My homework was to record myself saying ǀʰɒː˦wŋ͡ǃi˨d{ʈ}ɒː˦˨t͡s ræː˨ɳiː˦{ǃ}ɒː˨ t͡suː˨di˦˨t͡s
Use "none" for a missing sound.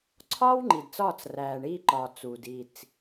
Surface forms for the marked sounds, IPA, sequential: t͡s, ǃ

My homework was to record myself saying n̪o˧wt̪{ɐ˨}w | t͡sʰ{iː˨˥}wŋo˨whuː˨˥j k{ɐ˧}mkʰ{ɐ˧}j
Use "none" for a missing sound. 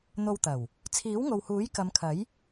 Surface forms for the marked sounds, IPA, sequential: ɐ˨˩, iː˨˥, ɐ˨˧, ɐ˨˥

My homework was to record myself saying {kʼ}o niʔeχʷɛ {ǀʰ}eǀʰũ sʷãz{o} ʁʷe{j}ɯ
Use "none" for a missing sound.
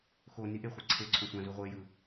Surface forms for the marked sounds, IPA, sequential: x, ǀʰ, u, j

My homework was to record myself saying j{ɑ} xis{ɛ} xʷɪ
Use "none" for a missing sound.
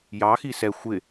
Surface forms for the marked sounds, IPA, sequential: ɑ, ɛ

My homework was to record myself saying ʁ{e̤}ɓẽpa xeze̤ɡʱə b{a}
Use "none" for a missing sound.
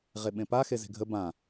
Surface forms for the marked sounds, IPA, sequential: e, ã

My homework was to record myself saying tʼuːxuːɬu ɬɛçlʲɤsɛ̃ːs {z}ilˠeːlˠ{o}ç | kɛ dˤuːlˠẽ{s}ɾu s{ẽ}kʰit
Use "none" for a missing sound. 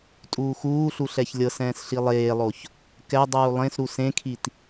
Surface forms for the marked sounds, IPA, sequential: ɬ, o, s, ẽ

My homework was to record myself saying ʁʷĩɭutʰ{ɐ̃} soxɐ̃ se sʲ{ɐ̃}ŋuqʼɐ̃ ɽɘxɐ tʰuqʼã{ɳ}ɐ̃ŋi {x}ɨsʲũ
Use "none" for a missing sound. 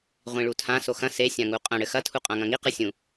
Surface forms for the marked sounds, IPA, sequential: ã, ã, ŋ, q

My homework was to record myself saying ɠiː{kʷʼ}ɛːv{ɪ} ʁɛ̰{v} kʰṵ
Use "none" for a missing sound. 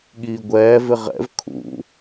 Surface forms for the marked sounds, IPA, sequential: ɡʷ, ɪ, v

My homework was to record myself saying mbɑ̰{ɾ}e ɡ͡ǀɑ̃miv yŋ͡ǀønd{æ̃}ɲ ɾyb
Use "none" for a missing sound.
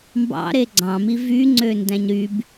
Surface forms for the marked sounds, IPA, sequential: ɾ, æ̃

